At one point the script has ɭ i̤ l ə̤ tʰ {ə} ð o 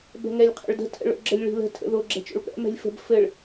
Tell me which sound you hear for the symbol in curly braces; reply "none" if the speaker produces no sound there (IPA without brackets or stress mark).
ə̰